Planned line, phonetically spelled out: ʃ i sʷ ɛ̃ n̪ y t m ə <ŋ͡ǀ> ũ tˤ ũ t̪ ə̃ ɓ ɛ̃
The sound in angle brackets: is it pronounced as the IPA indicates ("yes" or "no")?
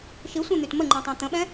no